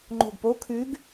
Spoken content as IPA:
ŋ͡ǃ o̤ ɡ p o kʰ ʉ ɡ

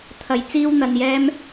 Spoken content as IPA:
t̪ʰ ɐ˧ j t͡s iː˥ w n̪ ɐ˧ n j ɛː˥ m

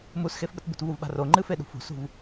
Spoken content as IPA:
m u s x e f ɓ ə t b ṳ t v u v ɓ a̤ r o ŋ͡ǃ ɨ f e ɗ ṳ f ṳ s ṳ v

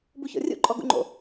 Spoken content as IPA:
b u ç ɔ̰ rʲ ṵ ǃʼ ɔ ɡ ṵ ŋ͡ǃ o̰

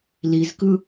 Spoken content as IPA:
l i z k ɯ

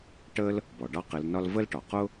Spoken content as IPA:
ʈ ə˥ l | b ɔ˩˧ ɖ ɑ˥ q ɪ˧˥ l n ɒ˥ l v ə˥ l ʈ ɒ˩˧ q ʊ˥

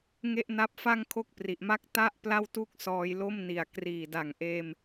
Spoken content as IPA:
ŋ e˥˩ ʔ n a˦˥ p̚ f a˥˩ ŋ kʰ o˥˩ k̚ p r i˨˩ ʔ m a˦˥ k̚ t a˥˩ ʔ p l a˥˩ w t u˥˩ k̚ s ɔː˧ j l o˥˩ m n i˨˩ a̯ k r iː˨˩ d a˨˩ ŋ ʔ eː˧ m

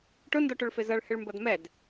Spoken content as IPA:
ʈ ʊ n d ɔ ʈ ʊ ɭ f ɪ z ʌ ɭ h ɪ ɭ m b ʌ d m ɛ d

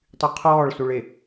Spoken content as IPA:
tˤ y qʰ ɔː ɭ s u ɭ e

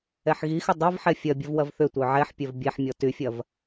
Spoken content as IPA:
ɛ ħ ɣ i x ʏ dˤ ɐ v ħ ɛ fʲ ɐ bʲ ɐ v w ɐ v θ ʏ tʷ œ ʕ ɛ ħ pʲ œ v bʲ ɛ ħ mʲ ɔ t y fʲ ɐ v

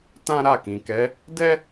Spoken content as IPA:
t ã˦ ɾ a˦˨ k ĩ˨ k ɛ˨˦ | d ɛ˦

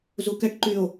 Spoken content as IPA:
z u k ɛ ʈ ǃ y o̯

